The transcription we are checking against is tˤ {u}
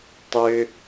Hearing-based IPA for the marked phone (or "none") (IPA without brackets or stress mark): ø